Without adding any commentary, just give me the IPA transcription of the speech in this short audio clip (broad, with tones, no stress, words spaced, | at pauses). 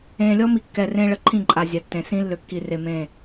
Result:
ẽː˨lʲɔ˦mi˨ kːɛ˨rẽː˦ɭə˨ ǃʰĩ˦˨ǃʼa˨ zʲa˨tːẽ˨ sĩ˦ lːø˨kːi˨re˨mẽː˦˨